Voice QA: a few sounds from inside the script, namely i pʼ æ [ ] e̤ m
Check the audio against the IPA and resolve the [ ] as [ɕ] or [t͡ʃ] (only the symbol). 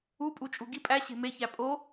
ɕ